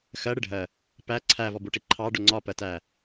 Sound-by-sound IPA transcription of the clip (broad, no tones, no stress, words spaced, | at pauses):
xɜ ɽɪɖʱɜ | pæ ǀʰævɔbuʈi ǃʰɑɖʊ ŋ͡ǀɒpɜtæ